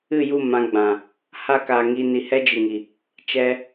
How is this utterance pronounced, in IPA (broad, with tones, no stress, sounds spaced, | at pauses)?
ɨ˦˨ j u˦˨ m ã˧ ɡ͡b ã˨ | h a˦ k aː˨ ŋ i˧ n i˨ h ɛ˦ d͡ʒ ɨ˨ ŋ i˨ | t͡ʃ ɛ˧